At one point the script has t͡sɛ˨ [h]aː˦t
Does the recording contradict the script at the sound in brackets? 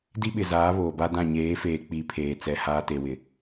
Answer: no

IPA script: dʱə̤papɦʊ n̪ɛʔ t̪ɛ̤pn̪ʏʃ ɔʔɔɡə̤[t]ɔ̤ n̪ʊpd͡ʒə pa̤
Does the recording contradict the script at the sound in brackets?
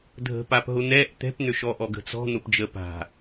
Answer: yes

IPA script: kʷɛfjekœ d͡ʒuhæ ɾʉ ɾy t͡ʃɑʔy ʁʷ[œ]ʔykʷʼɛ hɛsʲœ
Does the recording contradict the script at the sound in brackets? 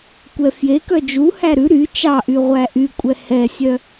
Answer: yes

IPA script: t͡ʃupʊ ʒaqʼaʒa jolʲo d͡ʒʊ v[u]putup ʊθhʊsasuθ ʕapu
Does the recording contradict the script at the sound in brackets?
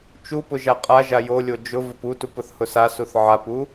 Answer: yes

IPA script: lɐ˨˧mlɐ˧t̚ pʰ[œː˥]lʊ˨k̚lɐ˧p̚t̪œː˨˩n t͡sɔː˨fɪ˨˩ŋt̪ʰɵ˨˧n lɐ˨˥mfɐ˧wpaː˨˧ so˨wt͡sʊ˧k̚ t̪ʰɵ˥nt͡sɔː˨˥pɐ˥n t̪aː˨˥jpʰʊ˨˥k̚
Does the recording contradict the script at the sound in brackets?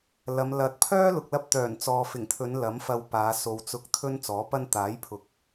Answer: no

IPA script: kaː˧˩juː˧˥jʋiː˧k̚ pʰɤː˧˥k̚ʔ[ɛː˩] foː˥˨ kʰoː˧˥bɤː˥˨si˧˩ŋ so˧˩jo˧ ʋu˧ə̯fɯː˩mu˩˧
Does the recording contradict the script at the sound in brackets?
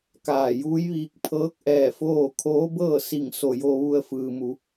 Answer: yes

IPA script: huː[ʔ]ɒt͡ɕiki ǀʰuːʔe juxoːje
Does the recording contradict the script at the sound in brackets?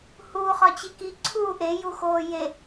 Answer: yes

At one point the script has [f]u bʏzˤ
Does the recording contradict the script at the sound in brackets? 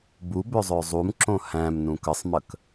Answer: yes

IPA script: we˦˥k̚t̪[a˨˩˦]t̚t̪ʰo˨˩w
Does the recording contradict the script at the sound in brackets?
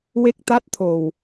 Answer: yes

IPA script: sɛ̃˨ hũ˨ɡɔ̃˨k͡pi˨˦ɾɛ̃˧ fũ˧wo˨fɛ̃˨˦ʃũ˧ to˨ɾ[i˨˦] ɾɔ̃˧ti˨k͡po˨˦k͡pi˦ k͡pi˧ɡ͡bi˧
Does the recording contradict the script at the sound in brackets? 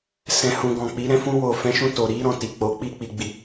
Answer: no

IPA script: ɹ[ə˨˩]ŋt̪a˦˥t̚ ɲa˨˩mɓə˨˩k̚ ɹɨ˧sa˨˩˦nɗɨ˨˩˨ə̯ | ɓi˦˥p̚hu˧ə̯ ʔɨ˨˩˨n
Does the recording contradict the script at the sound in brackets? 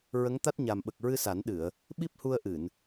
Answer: yes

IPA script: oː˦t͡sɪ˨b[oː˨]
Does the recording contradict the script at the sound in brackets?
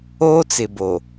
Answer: yes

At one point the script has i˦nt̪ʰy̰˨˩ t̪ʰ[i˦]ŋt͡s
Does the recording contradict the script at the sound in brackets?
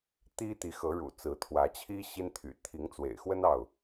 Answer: yes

